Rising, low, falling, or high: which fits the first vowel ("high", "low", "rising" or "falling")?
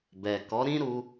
low